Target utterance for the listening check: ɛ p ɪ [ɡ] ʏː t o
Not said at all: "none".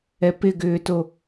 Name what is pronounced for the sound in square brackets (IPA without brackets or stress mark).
ɡ